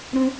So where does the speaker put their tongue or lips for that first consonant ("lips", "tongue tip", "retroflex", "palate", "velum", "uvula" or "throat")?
tongue tip